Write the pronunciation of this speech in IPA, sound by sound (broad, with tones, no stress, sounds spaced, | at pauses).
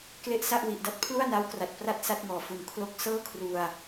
k l e˥˩ ʔ s a˥˩ ʔ w i˨˩ ʔ d a˦˥ t̚ pʰ l u˥˩ a̯ n a˦˥ w k r a˨˩ t̚ p r a˥˩ t̚ s a˥˩ t̚ ŋ ɔː˨˩ f u˨˩ n kʰ l o˦˥ k̚ s ɤː˥˩ kʰ r u˧ a̯